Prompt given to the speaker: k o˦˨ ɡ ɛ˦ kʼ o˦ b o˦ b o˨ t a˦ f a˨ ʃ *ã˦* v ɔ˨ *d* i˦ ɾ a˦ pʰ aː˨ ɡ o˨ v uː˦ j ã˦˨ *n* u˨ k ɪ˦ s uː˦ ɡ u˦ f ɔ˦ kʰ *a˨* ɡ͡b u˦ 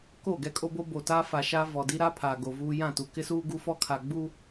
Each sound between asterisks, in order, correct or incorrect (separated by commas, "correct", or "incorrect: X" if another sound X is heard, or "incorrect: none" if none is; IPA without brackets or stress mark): incorrect: a˦, correct, incorrect: t, correct